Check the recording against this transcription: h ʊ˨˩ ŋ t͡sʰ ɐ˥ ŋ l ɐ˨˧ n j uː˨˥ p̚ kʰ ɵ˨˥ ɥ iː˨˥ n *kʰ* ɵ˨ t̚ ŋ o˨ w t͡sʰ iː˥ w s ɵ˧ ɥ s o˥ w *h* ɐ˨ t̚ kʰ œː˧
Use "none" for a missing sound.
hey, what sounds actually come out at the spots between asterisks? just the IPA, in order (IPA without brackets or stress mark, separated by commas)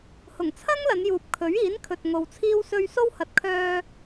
kʰ, h